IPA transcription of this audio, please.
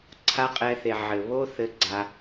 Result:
ǀʰ a˦ qʼ ɛ˧ θ e˨ ʕ ɘ˨ β o˦ θ ɘ˦ ɡ͡ǀ a˦

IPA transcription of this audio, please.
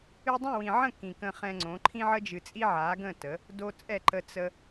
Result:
ɨ˧ dˤ õ˦˨ w ĩ˨ ʕ ə̃˦˨ k ĩ˨ k ə̃˧ χ ɛ̃˧ ŋ͡ǀ õ˨˦ ǃʰ ĩ˧ ʕ ə˧ d͡ʒ ɨ˨ t͡sʼ i˧ ʕ a˨˦ ɡ ə̃˦˨ t ə˨˦ | d o˧ t͡sʼ ɛ˦˨ ǃ ə˧ t͡s ə˦

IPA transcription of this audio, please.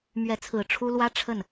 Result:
m ɥ ɛ˧˥ t͡sʰ ɹ̩˨˩ ʈ͡ʂʰ u˥ l w ä˥ ʈ͡ʂʰ ə˥˩ n

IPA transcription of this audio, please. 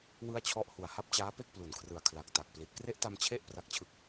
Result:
w ɯ˥˩ a̯ t͡ɕʰ ɔ˥˩ ʔ h u˨˩ a̯ h a˦˥ p̚ t͡ɕ aː˦˥ p e˥˩ k̚ p l u˨˩ n kʰ r ɯ˨˩ a̯ kʰ l a˨˩ k̚ t a˨˩ k̚ p l i˨˩ t̚ k r e˦˥ ʔ t a˧ m t͡ɕʰ e˥˩ ʔ p r a˦˥ k̚ t͡ɕʰ ɯ˦˥ k̚

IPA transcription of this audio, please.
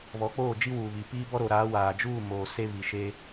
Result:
β ɔ˨˦ k͡p oː˦˨ d͡ʒ i˦ w uː˨ β i˨ p iː˦ b ɔ˦ ɾ o˨ ɾ aː˨˦ w aː˨ d͡ʒ uː˦˨ m o˨ s e˦ β i˨ ʃ e˦

